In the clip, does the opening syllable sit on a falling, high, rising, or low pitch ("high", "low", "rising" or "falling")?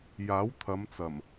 rising